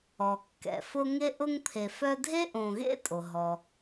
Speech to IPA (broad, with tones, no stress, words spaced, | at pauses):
ɔ˩kːɛ̰˩fʊ˦ ŋe˥ ʔʊ˦ŋpʰe˨fœ˦ dʱe˥ʔõ˨ɣḛ˥tʼo˩ ɦɔ˩